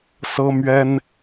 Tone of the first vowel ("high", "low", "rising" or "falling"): high